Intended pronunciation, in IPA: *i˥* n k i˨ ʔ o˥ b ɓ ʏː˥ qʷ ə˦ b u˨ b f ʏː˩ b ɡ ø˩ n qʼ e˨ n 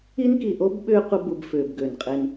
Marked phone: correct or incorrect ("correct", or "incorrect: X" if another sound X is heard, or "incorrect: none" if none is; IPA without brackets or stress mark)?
correct